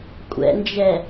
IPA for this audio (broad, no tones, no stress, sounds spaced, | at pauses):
kʷʼ ɛ̰ n d͡ʒ ɛ